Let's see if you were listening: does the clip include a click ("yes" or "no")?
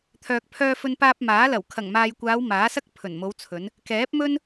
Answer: no